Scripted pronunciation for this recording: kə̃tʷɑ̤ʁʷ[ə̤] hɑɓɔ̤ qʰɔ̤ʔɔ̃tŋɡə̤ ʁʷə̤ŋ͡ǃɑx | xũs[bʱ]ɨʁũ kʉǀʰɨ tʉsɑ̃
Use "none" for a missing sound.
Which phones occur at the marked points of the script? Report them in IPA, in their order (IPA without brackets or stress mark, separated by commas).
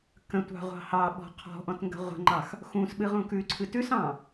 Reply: ɑ̤, ɓ